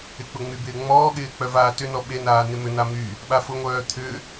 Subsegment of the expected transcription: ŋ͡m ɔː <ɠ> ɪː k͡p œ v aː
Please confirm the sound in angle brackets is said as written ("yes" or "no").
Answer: yes